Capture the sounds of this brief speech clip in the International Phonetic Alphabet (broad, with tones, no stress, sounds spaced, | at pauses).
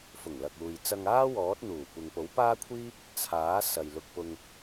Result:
f ʊ˨˩ ŋ l ɐ˨ k̚ uː˨ j t͡s ɐ˧ ŋ aː˥ w ɔː˨˥ t̚ n̪ uː˨˩ kʷ ɪ˨ ŋ p o˨˥ w p aː˥ kʷʰ iː˥ p̚ | t͡sʰ aː˨˥ s ɐ˨ j l ʊ˧ k̚ p ʊ˧ ŋ